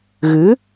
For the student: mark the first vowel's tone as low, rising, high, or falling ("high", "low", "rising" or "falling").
rising